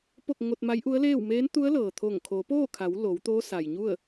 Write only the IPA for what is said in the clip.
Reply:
p o˥˨ k̚ ŋ o˧ t̚ m a˧˥ j ʔ u˧˥ ə̯ l eː˥˨ w m eː˧˥ n t̪ u˧˥ ə̯ l ɤː˩ t̪ʰ o˧˩ ŋ kʰ o˩˧ p oː˥˨ kʰ a˩˧ w l o˩˧ w t̪ oː˧˥ s a˩ j ɲ u˥˨ ə̯

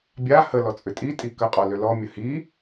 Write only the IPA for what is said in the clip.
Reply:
bʲ a h ə l ɔ t͡sʼ ʏ tʼ i tʼ i k ə qʼ ɔ l ʏ l ɔ mʲ ə h i

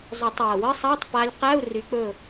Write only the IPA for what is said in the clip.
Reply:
zˤ ɵ˨˩˦ tˤ æ˨˩ w ə˧˥˧ sˤ a˧˥˧ tˤ p a˦˥ lʲ q æ˧˥˧ u̯ r y˨˦ k͡p ɵ˦˨

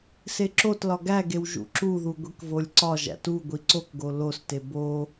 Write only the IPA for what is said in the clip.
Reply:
s e ǁ o t l ɒ ɡ æ ɡ e w ʒ ṵ ǁ u ð u ɡʷ i k v o lʲ ǀ ɒ ʒ æ̰ t u ɡʷ i ǀ o k ɡ o l o s t e b o

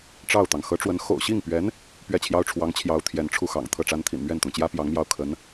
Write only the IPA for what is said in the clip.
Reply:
ʈ͡ʂ ɑ˥˩ ʊ̯ t̪ ɑ˩ ŋ x ɤ˧˥ ʈ͡ʂ w ə˧˥ n x o̰˨˩ ʊ̯ ɕ i˥˩ ŋ p ɥ ɛ˧˥ n | p ɥ ɛ˥˩ t͡ɕʰ j ɑ˥ ʊ̯ ʈ͡ʂʰ w ɑ˧˥ ŋ t͡ɕʰ j ɑ˧˥ ʊ̯ t̪ʰ j ɛ˧˥ n ʈ͡ʂʰ u˥˩ x ɑ̰˨˩ ŋ t̪ʰ ɤ˥˩ ʈ͡ʂ a˥ n t̪ʰ ḭ˨˩ n m ɥ ɛ˥˩ n t̪ ʊ˩ ŋ t͡ɕ j ä˥ p j ɑ˧˥ ŋ m j ɑ˥˩ ʊ̯ kʰ ə˧˥ n

